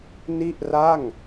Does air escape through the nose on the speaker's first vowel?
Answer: no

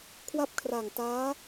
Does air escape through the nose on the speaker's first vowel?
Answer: no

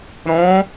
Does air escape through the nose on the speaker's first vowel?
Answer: yes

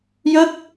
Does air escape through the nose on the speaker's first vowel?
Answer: no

